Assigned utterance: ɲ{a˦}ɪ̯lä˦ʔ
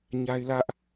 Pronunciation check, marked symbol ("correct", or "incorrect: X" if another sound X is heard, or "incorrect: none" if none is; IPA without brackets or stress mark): correct